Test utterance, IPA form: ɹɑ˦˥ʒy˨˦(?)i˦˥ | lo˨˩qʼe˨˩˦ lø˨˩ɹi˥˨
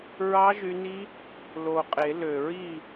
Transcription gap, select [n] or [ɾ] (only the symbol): n